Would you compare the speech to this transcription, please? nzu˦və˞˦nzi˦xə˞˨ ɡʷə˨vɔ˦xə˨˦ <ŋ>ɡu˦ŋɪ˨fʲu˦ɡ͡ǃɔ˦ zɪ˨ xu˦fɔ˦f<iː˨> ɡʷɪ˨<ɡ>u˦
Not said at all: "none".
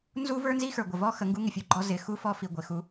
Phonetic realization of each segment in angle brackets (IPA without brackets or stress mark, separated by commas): ŋ, i˨, x